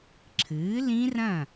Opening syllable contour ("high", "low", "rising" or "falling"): rising